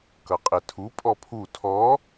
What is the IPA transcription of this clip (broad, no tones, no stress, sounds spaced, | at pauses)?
k ʌ qʼ e tʰ u pʼ ɔ pʰ u tʰ ɔ